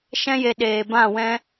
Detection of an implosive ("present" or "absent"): present